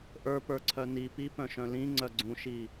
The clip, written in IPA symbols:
ʔə˞pə˞ ǀʰœni pipœ̃ʃœ̃ lĩ ŋ͡ǀœɡ͡ǀũʃi

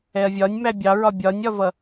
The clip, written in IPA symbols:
ɛɐ̯vʲɒnʲ mæbʲɑɹɒ bʲɒnʲɒvʌ

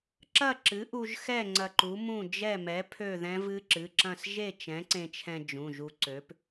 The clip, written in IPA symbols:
ǁɐ˥˨ǁɨ˨˥ʔu˧ʒxɛ˥˨ ŋ͡ǀɐ˧ǃu˨˥mũ˥˨ d͡ʒɛ˥˨mɛ˨˥ pʰø˥˨ðɛ̃˦˥vɨ˦˥ ǁɨ˩˧˩ǁɐ̃˥˨s ʒe˥˨t͡ʃɛ̃˨˥ǀẽ˧t͡ʃʰɛ̃˧ d͡ʒũ˩˧˩ʒu˧ǀø˨˥p

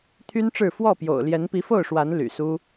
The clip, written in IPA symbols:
t̪ʰy˦nʈ͡ʂɻ̩˥˨ fwɔ˥˨pjo̰˨˩ʊ̯ljɛ˨˦n pi˨˦fo˥˨ʊ̯ʂwa˨˦n ly̰˨˩su˦

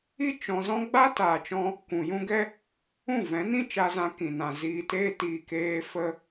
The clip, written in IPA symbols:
i˦ t͡ʃɔ̃˧zɔ̃˦ ɡ͡ba˦taː˨t͡ʃɔ̃˧ | kʷũ˨jũ˦ɡɛ˦ | ũ˦˨vɛ̃˨˦nĩ˦ t͡ʃa˧zã˧kĩ˨nã˨ ziː˧teː˦tiː˧ keː˧ fə˦

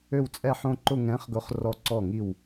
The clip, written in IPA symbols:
ø˥˧wt͡sʼɛ˥˧ħõ˥˧ǃʊ˥˧ ŋɛ̃˨˥χɡʊ˨˥χ rɔ˧˩ǀɔ˧˩ŋi˧˩w

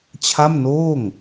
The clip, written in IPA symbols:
t͡ɕʰa˥˩mnoː˥˩ŋ

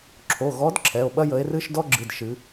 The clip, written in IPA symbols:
ǁʰo˩˧˩ ɣɔ˨˦d ǁʰɛ˩˧˩o̯ɓɐ˥jə˨˦e̯ rɨ˥ʃ dɔ˥ɡ͡ǁɨ˩˧˩d ʃɨ˨˦

